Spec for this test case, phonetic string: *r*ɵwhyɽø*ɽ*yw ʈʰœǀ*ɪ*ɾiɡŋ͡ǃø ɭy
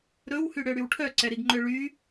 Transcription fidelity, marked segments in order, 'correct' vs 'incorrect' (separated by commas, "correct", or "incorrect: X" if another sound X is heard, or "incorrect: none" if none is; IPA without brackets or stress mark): incorrect: ɾ, correct, incorrect: ɛ